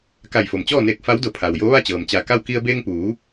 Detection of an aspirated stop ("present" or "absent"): present